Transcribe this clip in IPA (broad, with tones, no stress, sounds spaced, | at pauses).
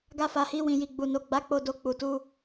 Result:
ɡ a˧ f a˨ h i˧ w ĩ˨ j i˨ ɡ͡b u˨ n o˨ ɡ͡b a˨˦ k͡p o˧ d o˧ k͡p u˨ t u˧